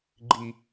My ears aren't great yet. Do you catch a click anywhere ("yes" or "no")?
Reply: yes